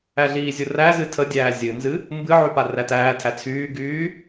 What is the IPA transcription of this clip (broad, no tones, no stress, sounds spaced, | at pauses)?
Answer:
æ ɮ iː zʲ u r æ z ɨ tʰ ə dʲ æː zʲ ɨ n z ɨ | m b ɨ ʕ y p a r æ t æː tʰ æ t͡sʰ yː ɡ yː